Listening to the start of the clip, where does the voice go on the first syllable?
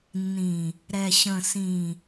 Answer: low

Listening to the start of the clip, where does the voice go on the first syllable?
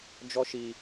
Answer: high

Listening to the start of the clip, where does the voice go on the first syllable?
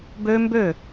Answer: high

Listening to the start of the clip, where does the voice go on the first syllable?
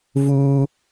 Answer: high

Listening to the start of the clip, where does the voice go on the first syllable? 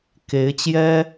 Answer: rising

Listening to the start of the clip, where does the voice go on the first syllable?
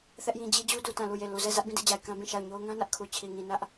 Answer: high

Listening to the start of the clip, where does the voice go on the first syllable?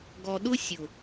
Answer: low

